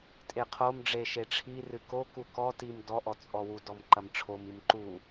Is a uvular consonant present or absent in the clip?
present